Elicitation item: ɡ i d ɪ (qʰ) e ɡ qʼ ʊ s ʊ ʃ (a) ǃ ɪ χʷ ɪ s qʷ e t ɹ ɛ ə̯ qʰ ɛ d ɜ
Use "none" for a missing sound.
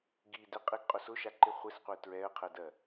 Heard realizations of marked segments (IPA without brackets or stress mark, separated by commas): qʼ, a